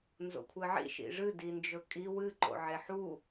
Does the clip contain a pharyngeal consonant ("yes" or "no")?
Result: yes